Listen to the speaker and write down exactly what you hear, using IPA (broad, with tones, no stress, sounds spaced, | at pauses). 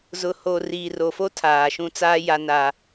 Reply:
z ʊ˨ h o˨ r iː˨ r o˨ f o˦ tʰ aː˨ ʃ ũ˦ t͡s aː˦ j a˦ n aː˦